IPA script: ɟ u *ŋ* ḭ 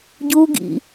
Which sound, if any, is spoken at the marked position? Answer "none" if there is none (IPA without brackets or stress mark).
ɡ